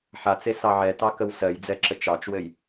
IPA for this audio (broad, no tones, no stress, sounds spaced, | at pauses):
ħ a t͡s e s ɑ ʕ ɛ t ɑ k ə w s ɜ j d͡z ɛ ǁ ə t͡ʃ ɑ t͡ʃ w ɘ j